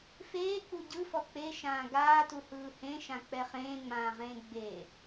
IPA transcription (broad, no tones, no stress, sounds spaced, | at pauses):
f eː k͡p u ɟ ɯ f ɔ k͡p e ʃ ãː ɡ aː t u h ɯː h ẽ ʃ ã k͡p ɛ χ ẽː ŋ͡m ãː ʁ ẽː ɡ͡b e